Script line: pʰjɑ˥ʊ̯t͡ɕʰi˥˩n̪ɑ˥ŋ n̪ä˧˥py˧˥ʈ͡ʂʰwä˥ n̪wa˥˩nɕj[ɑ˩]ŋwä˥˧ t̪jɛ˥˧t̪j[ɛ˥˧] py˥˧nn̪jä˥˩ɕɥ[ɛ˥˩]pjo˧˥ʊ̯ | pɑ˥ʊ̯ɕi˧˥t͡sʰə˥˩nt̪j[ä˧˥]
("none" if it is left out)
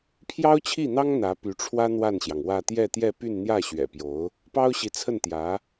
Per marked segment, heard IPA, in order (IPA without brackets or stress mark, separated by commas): ɑ˩, ɛ˥˧, ɛ̰˨˩, ä˧˥